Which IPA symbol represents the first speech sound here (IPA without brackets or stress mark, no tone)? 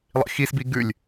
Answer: lˠ